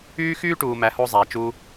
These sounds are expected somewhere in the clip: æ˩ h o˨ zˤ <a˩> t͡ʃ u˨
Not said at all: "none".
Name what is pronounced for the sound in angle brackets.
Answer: æ˩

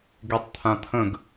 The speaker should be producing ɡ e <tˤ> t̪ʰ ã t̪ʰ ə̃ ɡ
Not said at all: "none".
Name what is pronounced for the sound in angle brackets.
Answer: tˤ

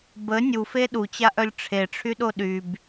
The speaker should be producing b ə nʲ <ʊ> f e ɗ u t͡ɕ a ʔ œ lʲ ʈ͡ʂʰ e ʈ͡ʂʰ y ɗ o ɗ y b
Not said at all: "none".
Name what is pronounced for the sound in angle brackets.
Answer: u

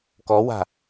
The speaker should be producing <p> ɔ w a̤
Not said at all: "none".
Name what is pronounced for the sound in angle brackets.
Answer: k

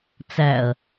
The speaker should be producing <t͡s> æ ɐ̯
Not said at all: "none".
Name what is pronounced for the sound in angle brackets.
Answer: t͡s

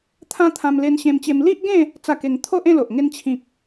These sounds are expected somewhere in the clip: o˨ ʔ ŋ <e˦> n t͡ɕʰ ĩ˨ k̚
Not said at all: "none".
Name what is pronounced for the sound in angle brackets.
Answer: e˧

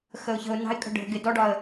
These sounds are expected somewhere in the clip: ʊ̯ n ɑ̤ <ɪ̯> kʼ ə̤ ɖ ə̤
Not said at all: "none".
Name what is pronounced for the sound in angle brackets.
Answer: ɪ̯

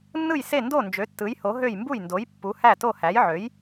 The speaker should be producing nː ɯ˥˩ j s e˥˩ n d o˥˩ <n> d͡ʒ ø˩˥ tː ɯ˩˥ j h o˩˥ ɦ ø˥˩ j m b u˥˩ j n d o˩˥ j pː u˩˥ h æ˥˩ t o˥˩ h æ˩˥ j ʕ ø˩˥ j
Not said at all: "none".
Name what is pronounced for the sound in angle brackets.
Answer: n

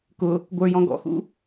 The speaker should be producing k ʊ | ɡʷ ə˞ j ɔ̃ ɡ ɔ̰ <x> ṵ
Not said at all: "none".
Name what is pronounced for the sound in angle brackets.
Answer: x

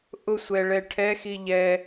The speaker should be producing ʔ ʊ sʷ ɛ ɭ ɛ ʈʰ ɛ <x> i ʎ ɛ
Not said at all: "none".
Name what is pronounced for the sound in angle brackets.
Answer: x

